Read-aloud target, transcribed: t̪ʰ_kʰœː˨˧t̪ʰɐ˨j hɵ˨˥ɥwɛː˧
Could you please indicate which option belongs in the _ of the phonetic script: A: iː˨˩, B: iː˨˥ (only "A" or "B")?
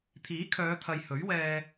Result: B